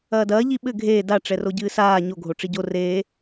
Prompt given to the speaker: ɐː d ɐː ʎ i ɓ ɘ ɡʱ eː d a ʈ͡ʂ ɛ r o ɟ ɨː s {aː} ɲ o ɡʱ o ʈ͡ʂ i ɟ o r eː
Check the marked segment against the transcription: correct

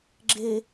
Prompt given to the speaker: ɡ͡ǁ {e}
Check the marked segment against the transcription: correct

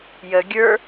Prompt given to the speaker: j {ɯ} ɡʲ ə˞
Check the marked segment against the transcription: incorrect: ə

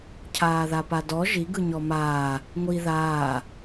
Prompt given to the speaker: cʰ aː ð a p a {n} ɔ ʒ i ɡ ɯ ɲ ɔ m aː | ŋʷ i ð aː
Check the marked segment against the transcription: incorrect: d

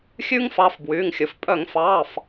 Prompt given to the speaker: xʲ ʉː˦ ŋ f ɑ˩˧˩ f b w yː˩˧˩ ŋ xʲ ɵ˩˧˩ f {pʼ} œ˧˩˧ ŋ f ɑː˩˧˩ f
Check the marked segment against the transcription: correct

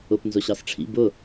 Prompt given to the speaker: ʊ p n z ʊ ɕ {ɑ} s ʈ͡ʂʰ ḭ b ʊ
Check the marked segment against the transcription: correct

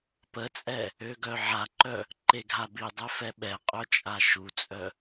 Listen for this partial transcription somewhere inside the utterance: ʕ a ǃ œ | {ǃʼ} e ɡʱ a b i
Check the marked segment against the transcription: incorrect: ǃ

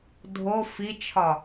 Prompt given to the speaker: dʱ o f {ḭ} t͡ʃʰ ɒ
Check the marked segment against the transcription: incorrect: i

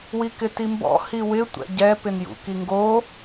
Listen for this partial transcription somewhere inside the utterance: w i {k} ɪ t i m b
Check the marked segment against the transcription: correct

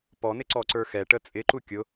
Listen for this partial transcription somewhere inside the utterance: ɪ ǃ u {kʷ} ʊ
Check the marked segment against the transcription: incorrect: kʲ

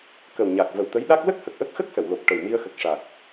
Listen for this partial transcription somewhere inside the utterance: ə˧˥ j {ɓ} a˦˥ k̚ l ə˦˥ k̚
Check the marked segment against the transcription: incorrect: ɗ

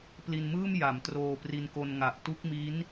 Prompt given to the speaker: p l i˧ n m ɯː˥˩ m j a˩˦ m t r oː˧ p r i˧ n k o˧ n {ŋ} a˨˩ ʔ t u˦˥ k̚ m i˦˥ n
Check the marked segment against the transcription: correct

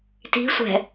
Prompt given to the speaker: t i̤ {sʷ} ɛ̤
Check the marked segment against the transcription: correct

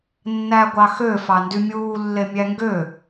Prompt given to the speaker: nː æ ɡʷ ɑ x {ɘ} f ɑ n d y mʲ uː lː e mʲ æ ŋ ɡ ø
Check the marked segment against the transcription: incorrect: ø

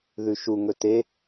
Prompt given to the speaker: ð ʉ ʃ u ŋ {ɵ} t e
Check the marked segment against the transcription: correct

